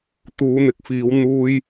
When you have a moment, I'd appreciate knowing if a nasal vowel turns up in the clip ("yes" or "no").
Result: no